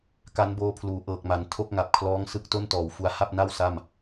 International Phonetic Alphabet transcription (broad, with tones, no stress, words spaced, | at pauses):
ka˦˥nboː˧pʰluː˩˦ ʔɤː˨˩k̚ma˩˦n tʰo˥˩k̚ŋa˨˩p̚kʰlɔː˦˥ŋ sɯ˦˥k̚to˥˩ntɔː˩˦wfu˧a̯ ha˥˩p̚na˥˩w sa˥˩m